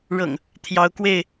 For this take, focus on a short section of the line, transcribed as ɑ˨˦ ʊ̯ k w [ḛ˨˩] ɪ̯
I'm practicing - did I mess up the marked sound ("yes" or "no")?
yes